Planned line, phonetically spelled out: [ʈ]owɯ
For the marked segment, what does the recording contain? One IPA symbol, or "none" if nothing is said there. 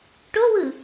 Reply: ʈ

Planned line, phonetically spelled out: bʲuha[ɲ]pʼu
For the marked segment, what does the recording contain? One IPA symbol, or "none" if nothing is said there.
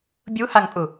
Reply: ŋ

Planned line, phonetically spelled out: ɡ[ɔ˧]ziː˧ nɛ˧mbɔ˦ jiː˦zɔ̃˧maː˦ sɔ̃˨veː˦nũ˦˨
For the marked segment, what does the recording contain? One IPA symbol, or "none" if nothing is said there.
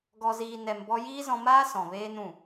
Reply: ɔ˧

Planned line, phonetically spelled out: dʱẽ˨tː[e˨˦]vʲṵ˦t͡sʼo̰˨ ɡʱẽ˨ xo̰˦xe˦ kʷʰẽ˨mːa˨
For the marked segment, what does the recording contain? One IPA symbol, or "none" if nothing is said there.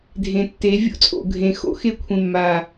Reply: e˨˦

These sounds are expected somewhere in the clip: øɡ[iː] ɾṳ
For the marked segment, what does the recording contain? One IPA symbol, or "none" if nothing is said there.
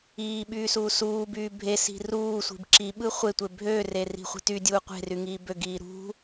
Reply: iː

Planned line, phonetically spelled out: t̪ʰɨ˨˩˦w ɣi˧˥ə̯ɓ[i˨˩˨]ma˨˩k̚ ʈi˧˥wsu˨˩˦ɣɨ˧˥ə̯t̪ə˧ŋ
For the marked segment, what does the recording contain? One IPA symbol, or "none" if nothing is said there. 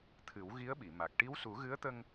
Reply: i˨˩˨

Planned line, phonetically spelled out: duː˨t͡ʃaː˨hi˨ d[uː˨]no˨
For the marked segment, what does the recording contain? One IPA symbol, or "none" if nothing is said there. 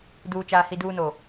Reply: uː˨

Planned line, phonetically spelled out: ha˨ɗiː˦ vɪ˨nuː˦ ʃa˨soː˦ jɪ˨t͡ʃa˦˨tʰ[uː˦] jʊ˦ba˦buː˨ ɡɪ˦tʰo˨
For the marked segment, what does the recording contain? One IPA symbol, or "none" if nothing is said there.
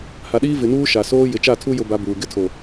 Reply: u˦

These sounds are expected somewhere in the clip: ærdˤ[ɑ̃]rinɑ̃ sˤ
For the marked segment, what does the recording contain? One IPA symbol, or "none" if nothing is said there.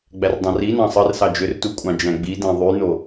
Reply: ɑ̃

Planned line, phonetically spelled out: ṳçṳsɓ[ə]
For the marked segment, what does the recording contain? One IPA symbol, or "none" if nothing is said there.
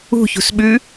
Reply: ʉ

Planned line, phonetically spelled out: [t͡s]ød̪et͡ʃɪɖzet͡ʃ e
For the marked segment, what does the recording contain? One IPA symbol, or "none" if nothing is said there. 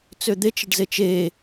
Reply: t͡s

